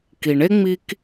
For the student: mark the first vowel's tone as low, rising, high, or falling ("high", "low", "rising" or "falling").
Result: low